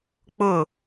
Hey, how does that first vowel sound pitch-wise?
falling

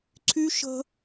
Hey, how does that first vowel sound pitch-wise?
high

